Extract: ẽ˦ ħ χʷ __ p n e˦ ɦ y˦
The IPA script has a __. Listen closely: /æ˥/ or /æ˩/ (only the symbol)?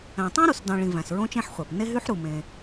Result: æ˩